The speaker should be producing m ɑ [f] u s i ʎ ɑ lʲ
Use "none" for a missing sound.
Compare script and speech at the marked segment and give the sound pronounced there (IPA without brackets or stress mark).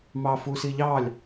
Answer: f